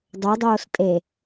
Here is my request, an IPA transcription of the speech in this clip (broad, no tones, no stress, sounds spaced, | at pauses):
dˤ o dˤ oː s tʼ e